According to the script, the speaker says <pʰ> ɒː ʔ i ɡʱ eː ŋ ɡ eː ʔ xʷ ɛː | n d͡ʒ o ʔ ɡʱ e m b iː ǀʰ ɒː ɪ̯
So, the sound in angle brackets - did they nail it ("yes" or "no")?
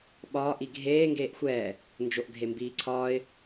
no